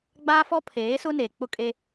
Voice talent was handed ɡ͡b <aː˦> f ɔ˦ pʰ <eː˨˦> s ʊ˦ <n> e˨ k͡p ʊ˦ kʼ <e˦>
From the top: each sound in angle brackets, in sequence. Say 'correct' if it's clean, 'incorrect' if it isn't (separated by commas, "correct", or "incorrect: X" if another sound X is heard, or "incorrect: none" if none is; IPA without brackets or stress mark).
correct, correct, correct, correct